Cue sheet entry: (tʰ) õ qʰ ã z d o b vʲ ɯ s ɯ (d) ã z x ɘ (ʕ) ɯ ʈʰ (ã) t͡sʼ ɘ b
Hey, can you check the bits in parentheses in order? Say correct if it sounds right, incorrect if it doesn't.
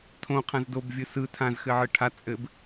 correct, incorrect, correct, incorrect

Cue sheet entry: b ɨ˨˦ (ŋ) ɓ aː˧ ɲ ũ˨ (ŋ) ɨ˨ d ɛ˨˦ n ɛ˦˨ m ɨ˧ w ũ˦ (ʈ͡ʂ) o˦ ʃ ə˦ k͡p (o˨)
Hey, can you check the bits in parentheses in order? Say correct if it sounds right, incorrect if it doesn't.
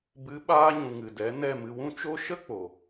incorrect, correct, incorrect, correct

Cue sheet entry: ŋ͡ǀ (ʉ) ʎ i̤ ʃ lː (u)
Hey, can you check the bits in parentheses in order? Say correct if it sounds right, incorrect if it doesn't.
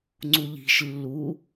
incorrect, correct

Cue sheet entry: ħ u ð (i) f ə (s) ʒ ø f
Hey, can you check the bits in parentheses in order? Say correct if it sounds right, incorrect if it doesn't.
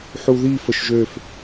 correct, incorrect

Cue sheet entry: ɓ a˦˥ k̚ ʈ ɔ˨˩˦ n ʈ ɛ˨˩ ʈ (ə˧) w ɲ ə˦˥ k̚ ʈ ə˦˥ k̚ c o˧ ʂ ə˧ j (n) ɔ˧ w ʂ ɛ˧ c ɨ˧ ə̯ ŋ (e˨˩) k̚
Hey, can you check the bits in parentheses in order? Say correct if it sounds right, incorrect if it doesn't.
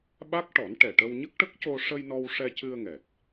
correct, correct, incorrect

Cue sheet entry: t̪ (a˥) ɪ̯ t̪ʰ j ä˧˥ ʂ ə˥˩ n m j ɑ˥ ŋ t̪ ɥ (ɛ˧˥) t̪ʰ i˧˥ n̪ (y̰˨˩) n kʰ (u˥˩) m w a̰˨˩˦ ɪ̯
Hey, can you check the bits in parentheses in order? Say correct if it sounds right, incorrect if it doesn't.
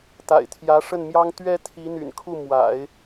incorrect, incorrect, correct, correct

